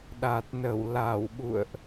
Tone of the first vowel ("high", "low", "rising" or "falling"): low